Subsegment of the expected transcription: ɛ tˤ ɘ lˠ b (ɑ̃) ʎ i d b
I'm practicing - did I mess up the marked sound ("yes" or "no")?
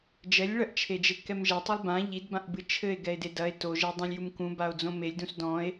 yes